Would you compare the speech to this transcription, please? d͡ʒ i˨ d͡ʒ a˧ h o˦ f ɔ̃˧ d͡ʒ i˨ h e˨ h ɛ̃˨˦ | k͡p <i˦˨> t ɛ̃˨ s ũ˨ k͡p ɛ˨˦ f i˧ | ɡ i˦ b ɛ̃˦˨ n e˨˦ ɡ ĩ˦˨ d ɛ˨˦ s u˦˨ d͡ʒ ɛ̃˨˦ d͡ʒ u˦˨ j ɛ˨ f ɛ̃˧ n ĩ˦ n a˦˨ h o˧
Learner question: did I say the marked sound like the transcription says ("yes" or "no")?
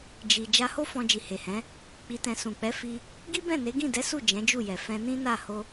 no